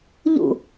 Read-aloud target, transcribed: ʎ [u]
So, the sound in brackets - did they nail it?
no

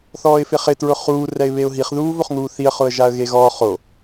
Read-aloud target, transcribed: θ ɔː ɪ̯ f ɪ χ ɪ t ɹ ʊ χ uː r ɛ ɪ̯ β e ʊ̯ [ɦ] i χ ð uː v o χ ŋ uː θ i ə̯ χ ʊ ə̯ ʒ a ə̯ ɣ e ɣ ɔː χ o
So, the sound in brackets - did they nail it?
yes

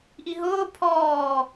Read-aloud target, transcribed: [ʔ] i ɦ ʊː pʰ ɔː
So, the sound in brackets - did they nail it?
yes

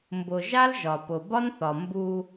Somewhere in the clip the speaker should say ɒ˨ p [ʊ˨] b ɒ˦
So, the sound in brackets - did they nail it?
yes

